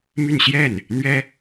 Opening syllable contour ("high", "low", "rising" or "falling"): falling